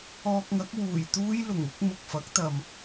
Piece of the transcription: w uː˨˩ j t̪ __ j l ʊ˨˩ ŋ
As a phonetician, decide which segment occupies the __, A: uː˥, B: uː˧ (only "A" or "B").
A